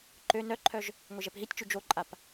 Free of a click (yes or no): no